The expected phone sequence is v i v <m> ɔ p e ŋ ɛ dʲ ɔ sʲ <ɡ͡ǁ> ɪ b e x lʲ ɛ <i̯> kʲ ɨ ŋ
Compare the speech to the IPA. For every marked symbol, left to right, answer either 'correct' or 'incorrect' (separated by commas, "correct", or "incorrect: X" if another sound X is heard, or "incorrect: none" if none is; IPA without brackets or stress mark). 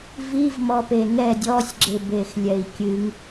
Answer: correct, correct, correct